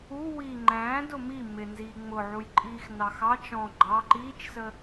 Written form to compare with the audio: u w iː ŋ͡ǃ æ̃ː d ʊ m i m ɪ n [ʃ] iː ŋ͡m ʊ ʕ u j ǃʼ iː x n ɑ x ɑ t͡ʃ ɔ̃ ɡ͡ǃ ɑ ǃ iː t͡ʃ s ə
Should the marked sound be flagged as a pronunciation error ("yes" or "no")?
yes